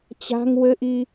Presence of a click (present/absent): absent